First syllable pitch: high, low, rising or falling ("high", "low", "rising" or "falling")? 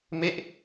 falling